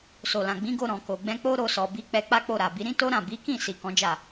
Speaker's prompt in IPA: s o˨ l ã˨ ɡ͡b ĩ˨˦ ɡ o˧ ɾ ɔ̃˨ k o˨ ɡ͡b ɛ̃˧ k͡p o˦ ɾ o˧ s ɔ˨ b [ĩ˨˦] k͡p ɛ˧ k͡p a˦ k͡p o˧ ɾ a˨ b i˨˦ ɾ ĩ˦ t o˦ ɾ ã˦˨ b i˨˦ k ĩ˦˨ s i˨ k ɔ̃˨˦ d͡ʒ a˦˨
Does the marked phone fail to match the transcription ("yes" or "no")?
yes